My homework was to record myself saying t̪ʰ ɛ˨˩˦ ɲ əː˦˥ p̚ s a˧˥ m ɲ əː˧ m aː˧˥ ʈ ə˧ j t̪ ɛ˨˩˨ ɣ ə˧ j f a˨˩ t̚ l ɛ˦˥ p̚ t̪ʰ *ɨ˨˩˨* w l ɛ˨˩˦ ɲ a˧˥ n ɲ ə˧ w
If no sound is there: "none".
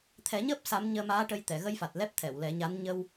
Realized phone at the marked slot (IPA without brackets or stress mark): ɛ˨˩˨